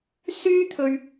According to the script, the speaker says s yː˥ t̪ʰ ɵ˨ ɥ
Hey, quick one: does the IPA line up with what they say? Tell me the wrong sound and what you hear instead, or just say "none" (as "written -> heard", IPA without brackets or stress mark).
none